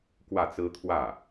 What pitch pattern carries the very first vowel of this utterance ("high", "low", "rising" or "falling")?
falling